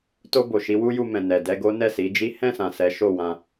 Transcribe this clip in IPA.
t o˧ b o˨ ʃ i˨˦ w u˦ j u˧ m ɛ̃˨ n ɛ˨ d ɛ˧ ɡ o˦ n ɛ˦˨ s i˨˦ d͡ʒ i˦ h ɛ̃˦˨ s ã˨ s ɛ˨˦ ʃ o˦˨ w ã˧

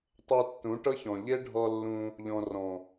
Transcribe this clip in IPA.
tˤ ɤ˧ tː ũ˨˦ ʈ ɤ˦ ç ɔ̃˨ ʎ e˦ ɖʱ ɔ˧ lː ũ˧ | ʎ ɔ̃˨ r ɔ̃˨

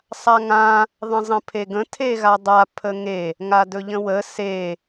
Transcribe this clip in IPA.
sˤ a ŋ ã | ðˤ ə̃ zˤ ə̃ pʰ e ɡ ə̃ tʰ e ɣ a dˤ a pʰ ə ŋ e | ŋ a d ɵ ʎ ə̃ w ə s e

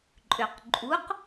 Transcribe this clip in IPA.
ǃʼ ʏ q ǃʼ u q

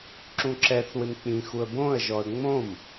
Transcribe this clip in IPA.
ǁ ũ ǁ ɛ θ w ɪ m k͡p ĩ x u ə̯ b õ ə̯ ʒ ɔ ə̯ ŋ͡m õ m

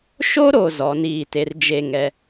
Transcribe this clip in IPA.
ʃ o˦ ɾ o˨ z ɔ˨˦ n iː˦˨ t e˦ r d͡ʒ e˦˨ ŋ ɛ˦

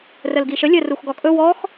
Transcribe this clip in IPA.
r ə l ɡ i ʃ ə lʲ ə r u x ɡ ɔ kʼ ɵ w ɔ x

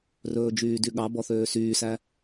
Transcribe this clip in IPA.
r ɵː d͡ʒ yː d y ɠ ɑ b ɔ θ øː s yː s æ

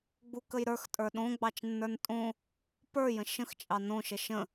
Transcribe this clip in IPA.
ɡ͡b u k ə j ɾ ə˞ x tʼ ə˞ ɗ õ ɡ͡b ɑ t͡ʃ nː ə˞ n tʼ õ | p ə˞ j ə̃ ʃ ə̃ x t͡ʃʼ ɑ n õ ʃ ə ʃ ə̃

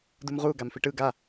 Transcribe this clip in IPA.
d u m ʁ u ɡ a m f i ʈ ɯ ɡ a

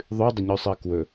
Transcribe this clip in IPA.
ðˤ ʉ dˤ ə ɲ ʉ sˤ ɜ k w ɵ

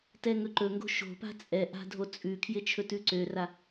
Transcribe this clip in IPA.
t ɛ ŋ ɵ ǃ ɵ ŋ ɡ o̤ ʃ o̤ p a̤ t͡sʼ ɛ ʔ a̤ dʱ o t͡sʼ ʉ kʰ j ɪ t͡ʃʰ ɵ t ʉ ǀ ø r a

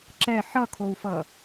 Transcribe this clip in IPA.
ǁ ɛ ħ ʌ kʰ o u̯ f ʌ

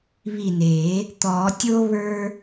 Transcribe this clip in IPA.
β i˧˩ n eː˨˩˦ | t̪ ɔː˨˩˦ tʲ o˧ β ə˞˧

